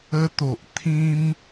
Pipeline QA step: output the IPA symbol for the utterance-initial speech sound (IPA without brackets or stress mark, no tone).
ə